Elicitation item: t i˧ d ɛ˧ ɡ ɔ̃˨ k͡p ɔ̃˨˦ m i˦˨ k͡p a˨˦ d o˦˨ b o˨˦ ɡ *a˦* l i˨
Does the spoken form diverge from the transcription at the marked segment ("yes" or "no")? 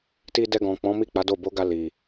yes